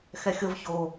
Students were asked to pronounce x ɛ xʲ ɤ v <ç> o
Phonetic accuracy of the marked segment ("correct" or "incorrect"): correct